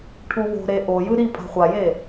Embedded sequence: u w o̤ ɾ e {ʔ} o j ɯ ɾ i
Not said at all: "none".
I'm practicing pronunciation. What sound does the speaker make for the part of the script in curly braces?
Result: ʔ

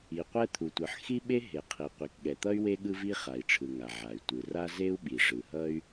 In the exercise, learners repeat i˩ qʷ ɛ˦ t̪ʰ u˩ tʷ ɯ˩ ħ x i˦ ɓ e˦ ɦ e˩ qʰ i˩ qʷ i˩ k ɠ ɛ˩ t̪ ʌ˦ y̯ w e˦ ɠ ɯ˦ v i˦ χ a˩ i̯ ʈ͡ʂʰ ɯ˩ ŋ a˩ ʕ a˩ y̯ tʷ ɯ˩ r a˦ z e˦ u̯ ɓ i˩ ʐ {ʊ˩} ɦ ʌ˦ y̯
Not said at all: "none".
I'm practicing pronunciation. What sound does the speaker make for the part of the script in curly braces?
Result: ɯ˩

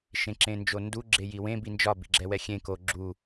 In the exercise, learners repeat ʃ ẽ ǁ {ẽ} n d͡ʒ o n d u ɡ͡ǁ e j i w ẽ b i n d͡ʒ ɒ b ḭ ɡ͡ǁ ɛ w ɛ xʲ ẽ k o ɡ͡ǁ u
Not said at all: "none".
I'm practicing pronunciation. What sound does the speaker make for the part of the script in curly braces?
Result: ẽ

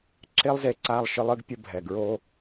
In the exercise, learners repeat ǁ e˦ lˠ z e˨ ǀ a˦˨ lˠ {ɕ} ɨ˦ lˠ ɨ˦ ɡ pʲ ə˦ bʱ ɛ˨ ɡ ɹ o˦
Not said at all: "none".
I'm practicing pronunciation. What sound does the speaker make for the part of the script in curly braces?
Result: ʃ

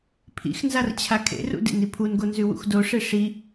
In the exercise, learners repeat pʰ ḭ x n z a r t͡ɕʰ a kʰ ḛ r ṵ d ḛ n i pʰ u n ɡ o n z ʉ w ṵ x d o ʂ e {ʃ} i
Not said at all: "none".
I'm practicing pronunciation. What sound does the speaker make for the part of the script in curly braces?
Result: ʂ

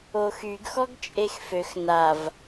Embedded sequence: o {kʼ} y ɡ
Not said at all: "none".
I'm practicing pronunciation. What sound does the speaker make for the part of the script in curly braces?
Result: x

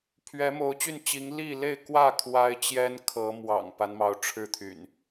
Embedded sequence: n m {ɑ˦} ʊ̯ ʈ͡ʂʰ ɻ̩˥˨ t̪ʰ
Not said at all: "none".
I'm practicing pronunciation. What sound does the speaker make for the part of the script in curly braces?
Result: ɑ˨˦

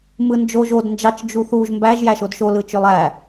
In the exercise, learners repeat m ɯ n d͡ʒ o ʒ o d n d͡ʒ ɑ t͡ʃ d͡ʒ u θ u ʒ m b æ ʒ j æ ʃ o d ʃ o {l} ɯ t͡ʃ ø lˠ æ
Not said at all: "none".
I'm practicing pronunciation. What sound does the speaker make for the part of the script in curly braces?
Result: l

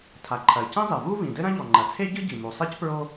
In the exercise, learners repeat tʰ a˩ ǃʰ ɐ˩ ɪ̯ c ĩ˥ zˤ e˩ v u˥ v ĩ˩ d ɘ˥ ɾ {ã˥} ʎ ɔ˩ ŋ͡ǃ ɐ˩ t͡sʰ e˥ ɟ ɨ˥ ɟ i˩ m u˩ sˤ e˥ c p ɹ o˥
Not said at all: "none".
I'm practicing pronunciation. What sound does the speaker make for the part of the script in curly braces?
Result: ɐ̃˥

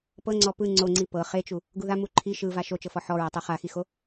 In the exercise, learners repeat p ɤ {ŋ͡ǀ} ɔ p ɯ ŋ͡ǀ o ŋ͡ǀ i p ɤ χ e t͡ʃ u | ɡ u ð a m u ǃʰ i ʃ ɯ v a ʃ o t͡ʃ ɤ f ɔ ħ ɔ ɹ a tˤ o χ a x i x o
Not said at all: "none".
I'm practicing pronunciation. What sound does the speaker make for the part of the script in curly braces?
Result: ŋ͡ǀ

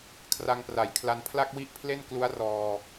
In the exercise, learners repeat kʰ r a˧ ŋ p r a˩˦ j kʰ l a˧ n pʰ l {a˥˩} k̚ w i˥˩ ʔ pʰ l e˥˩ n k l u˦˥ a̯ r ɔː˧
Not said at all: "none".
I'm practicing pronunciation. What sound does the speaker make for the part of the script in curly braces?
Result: a˥˩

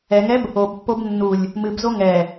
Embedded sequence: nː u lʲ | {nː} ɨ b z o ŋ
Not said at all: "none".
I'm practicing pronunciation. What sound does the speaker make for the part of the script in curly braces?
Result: m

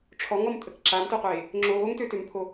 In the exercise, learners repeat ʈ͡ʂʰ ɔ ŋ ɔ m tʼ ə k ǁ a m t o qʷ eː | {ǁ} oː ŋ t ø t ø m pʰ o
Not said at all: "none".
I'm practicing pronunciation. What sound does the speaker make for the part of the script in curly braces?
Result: ŋ͡ǁ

